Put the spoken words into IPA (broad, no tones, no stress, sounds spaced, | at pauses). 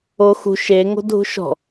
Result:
o x ṳ ʃ e ŋ o̤ dʱ ṳ ʃ ɔ̤